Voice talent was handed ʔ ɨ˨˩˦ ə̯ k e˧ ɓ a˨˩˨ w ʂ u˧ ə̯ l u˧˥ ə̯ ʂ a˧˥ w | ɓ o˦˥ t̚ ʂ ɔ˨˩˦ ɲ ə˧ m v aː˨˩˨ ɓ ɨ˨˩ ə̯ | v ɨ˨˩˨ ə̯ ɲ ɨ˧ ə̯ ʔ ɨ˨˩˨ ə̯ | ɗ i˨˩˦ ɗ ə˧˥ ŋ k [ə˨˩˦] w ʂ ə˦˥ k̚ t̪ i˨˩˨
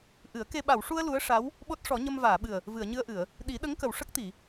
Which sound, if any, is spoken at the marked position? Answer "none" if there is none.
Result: ə˨˩˨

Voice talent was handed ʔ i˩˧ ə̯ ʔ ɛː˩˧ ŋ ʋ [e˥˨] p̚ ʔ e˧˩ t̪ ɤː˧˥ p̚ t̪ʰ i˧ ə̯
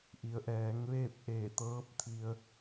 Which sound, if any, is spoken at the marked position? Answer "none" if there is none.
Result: eː˥˨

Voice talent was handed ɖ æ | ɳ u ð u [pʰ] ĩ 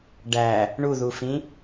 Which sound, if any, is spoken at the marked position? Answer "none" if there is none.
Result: f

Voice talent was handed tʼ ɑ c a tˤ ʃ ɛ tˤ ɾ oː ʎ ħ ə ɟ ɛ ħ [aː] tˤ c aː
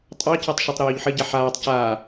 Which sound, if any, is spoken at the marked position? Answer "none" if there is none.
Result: aː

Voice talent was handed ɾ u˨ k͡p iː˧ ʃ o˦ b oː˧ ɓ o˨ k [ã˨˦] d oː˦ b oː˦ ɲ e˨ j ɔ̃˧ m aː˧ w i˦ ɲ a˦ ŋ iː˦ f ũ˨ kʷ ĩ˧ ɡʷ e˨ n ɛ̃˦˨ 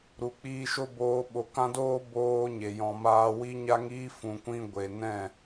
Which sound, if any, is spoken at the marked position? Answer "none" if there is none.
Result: ã˦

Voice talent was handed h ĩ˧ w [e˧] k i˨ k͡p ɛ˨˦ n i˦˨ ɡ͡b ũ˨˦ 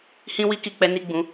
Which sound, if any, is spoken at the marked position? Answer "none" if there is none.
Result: i˧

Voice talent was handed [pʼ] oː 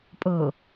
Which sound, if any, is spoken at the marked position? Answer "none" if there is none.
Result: pʼ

